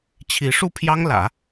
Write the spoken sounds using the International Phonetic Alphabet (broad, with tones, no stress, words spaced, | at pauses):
t͡ɕʰi˧˥ʂu˥˩pʰjɑ˥ŋlä̰˨˩˦